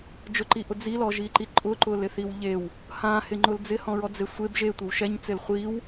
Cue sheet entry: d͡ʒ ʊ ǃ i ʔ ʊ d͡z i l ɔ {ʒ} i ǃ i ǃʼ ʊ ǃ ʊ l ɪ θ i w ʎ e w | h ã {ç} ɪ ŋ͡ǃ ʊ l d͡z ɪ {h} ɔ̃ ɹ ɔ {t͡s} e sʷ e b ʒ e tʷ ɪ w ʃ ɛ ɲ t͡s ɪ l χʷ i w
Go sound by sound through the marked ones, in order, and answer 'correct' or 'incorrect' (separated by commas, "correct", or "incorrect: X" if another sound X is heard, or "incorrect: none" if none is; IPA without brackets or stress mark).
correct, incorrect: h, correct, incorrect: d͡z